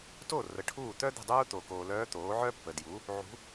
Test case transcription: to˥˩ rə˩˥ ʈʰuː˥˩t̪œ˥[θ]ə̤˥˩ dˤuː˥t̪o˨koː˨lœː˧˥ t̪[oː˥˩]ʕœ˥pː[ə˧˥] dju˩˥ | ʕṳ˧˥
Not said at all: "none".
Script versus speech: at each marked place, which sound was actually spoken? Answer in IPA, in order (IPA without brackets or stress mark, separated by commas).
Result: d̪, oː˩˥, ə˨